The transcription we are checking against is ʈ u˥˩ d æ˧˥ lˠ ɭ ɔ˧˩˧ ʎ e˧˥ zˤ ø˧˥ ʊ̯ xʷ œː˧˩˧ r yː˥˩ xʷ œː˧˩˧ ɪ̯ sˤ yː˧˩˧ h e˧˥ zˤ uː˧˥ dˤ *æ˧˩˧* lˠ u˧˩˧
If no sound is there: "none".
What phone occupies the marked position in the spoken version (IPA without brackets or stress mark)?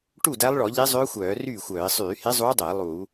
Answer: æ˧˩˧